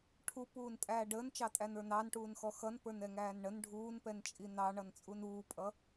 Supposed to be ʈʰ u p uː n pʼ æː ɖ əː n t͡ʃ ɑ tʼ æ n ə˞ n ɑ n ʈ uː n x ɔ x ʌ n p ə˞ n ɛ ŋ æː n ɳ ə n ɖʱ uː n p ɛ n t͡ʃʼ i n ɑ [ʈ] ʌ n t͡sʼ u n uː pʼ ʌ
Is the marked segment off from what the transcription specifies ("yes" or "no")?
yes